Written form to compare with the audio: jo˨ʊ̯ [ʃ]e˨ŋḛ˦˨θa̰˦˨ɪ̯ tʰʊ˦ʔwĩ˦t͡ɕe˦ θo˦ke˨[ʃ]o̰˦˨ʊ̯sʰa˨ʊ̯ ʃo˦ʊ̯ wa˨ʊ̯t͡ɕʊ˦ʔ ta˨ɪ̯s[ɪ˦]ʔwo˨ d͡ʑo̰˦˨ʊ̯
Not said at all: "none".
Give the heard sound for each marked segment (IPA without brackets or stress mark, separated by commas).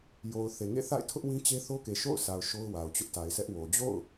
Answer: θ, ʃ, ɛ˦